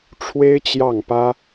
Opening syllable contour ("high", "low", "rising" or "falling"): high